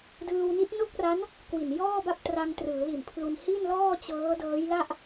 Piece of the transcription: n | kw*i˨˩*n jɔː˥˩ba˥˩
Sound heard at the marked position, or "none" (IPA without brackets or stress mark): i˨˩